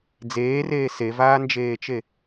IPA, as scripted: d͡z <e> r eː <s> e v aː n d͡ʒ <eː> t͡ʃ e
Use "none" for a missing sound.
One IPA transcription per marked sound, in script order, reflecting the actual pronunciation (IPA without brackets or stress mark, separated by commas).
eː, s, eː